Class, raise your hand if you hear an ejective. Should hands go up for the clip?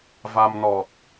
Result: no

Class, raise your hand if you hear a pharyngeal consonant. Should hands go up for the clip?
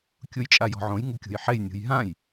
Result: yes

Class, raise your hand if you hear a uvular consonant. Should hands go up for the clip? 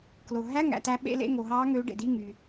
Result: no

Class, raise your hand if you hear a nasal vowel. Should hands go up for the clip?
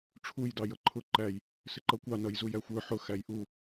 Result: no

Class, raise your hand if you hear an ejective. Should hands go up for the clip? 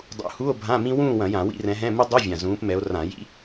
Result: no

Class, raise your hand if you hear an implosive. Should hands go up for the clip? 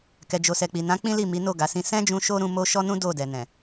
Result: no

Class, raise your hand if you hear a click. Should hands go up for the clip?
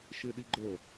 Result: yes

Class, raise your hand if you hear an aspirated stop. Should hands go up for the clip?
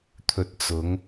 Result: yes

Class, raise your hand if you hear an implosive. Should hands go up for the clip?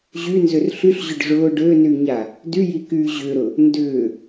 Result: no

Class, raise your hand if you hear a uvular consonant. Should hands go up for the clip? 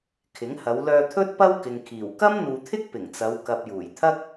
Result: no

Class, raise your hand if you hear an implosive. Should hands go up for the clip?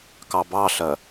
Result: no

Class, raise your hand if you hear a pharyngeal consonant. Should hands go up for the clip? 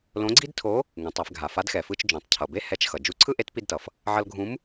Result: yes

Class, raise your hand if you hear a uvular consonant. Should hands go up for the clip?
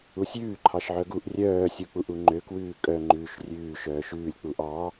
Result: no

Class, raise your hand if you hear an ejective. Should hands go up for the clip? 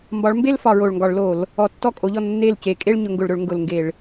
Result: yes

